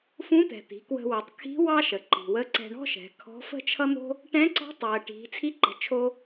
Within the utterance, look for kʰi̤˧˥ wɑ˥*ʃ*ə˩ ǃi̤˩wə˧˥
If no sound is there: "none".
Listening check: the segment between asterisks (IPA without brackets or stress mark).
ʃ